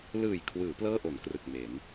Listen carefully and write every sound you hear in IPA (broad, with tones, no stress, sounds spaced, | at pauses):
l ɯː˨˩ j kʰ w ɯː˩˦ p l ɤː˥˩ ʔ o˩˦ n k r ɯ˨˩ k̚ m e˩˦ n